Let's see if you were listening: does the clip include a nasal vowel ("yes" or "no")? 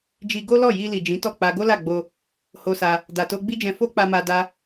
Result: yes